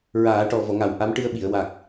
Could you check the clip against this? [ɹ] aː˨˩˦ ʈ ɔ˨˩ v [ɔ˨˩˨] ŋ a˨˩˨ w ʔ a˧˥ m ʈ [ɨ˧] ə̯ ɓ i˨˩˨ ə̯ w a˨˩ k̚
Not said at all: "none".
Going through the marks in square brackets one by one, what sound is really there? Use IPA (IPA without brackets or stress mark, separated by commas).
ɹ, ɔ˨˩˨, ɨ˧